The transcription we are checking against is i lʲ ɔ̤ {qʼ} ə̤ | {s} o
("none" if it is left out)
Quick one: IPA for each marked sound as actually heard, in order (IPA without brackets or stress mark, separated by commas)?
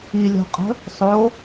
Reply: qʼ, sˤ